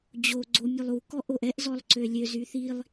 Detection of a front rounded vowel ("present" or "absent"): present